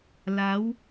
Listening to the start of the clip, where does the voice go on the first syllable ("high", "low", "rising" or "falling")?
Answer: rising